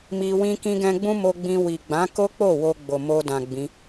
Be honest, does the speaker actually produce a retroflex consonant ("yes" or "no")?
no